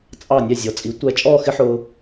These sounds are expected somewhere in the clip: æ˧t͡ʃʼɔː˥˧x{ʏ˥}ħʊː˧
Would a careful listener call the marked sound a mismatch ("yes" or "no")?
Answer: yes